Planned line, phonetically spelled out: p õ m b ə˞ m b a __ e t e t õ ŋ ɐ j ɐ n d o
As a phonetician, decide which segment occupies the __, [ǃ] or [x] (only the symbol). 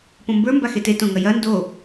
x